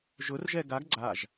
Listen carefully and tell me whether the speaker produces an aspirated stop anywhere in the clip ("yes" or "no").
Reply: no